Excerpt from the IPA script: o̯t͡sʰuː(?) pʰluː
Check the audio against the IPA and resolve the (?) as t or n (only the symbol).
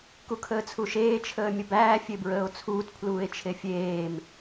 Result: t